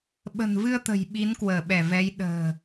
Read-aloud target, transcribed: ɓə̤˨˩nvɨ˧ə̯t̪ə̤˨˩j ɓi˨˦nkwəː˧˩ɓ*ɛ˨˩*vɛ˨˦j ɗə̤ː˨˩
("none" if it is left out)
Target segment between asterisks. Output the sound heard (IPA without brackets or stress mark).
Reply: ɛ˧˩